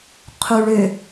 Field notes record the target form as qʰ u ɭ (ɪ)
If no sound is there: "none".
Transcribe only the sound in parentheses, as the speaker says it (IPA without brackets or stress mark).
ʏ